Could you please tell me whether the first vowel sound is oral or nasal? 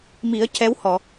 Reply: oral